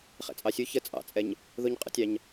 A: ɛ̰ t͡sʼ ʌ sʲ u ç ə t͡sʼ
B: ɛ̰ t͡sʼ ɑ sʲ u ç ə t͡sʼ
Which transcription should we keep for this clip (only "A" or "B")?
B